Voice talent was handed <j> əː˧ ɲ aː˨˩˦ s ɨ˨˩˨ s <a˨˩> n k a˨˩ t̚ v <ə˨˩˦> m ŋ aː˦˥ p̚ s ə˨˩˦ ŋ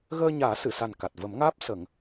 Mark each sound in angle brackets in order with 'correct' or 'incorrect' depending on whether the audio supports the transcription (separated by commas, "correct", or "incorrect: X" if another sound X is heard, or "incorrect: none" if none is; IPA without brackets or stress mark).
incorrect: ɣ, correct, correct